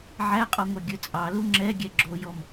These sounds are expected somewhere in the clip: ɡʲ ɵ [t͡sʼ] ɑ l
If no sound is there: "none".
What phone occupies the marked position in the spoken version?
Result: t͡sʼ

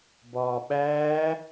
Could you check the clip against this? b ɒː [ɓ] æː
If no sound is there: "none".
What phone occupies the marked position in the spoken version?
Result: ɓ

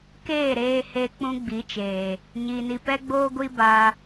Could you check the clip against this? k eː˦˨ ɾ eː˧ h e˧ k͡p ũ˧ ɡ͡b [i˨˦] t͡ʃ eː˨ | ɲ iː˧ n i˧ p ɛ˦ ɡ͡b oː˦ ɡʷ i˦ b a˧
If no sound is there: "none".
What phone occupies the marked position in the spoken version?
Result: i˨˦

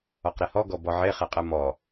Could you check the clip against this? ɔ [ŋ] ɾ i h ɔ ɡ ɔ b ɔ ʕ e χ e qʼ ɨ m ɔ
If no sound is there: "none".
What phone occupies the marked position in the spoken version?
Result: q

